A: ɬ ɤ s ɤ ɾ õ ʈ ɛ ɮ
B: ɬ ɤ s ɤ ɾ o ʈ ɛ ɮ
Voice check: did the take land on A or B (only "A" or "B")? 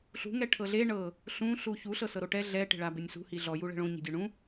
B